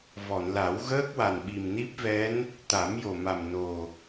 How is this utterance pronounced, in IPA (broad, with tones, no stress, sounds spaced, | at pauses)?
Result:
v ɔ˨˩˨ n l a˨˩˦ w ɣ əː˦˥ k̚ w a˨˩ n ɓ i˨˩ m n i˦˥ p̚ v ɛ˧˥ n | t̪ a˨˩˦ m j o˨˩ m a˨˩ m n o˨˩